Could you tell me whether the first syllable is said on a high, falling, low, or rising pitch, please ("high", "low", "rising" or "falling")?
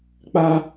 high